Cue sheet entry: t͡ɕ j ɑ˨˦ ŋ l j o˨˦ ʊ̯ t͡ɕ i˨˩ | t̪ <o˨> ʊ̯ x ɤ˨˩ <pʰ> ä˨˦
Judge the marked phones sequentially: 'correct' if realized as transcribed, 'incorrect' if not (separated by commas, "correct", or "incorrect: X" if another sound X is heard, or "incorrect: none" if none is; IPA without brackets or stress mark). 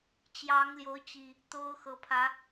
incorrect: o˦, correct